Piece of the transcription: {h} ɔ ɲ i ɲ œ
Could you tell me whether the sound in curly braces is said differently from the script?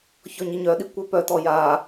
yes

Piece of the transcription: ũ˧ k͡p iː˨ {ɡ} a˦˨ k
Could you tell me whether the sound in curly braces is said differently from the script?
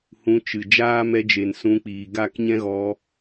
no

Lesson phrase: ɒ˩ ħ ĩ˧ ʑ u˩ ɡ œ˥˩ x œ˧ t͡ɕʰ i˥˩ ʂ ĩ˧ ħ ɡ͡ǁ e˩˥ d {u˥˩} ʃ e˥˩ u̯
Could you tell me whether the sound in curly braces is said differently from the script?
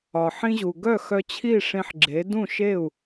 yes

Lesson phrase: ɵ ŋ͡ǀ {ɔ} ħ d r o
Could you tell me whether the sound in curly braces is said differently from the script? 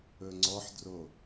no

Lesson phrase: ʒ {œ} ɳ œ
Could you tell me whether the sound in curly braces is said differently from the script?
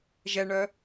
yes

